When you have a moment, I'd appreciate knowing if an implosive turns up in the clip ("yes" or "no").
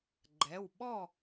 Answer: yes